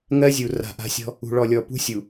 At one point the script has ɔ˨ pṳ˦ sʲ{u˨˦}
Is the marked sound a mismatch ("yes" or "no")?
yes